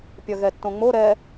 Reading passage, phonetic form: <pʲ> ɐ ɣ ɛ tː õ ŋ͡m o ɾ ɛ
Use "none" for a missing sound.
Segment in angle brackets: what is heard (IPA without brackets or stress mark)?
pʲ